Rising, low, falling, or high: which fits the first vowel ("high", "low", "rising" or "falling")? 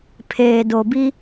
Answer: low